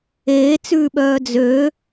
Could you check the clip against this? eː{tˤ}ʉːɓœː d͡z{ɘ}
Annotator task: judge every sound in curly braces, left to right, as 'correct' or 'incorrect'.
incorrect: t͡s, incorrect: ø

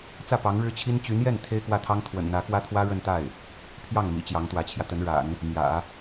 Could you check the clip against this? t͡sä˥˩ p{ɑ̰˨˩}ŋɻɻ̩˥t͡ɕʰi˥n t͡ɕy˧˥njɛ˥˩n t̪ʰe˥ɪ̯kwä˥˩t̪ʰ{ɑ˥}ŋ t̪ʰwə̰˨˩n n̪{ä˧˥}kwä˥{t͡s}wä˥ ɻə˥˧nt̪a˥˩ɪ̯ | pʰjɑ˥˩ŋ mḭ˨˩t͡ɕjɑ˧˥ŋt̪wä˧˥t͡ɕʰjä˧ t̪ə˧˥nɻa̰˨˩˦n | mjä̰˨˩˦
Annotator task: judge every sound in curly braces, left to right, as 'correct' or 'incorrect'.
incorrect: ɑ˧˥, correct, correct, incorrect: t̪ʰ

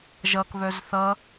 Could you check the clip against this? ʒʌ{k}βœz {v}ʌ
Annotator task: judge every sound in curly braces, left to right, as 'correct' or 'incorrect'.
correct, incorrect: θ

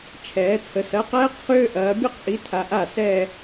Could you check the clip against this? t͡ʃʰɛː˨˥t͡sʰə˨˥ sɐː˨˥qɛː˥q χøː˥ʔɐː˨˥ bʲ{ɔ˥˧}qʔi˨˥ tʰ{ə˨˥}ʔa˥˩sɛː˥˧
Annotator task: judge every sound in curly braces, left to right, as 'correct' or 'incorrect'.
incorrect: ə˥˧, incorrect: a˨˥

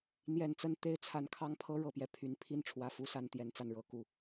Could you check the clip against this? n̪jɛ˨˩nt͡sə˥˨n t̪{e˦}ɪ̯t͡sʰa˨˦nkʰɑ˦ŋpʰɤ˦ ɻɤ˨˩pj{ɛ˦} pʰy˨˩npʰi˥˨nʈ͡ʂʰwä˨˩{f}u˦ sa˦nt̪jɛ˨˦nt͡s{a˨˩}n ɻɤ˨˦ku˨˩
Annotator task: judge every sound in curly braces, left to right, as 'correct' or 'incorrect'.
correct, correct, correct, incorrect: a˥˨

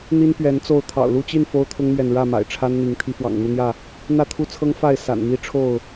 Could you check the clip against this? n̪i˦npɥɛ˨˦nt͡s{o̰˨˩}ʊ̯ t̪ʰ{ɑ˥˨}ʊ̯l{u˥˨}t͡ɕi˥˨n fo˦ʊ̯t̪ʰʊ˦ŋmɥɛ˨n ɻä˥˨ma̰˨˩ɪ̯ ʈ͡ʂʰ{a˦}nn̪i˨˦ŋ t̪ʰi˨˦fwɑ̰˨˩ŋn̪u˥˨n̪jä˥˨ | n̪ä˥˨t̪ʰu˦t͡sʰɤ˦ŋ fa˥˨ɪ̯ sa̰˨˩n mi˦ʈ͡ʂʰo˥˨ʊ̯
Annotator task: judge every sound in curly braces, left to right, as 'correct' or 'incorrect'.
incorrect: o˥˨, incorrect: ɑ̰˨˩, correct, correct

